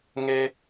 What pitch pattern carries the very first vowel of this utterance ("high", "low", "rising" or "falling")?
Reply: high